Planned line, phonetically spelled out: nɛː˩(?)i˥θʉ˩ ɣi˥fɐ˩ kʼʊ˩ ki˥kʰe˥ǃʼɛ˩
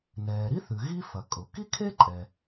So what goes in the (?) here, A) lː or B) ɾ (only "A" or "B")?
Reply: B